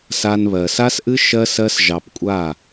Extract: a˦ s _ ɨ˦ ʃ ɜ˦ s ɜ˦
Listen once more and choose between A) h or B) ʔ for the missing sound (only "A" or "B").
B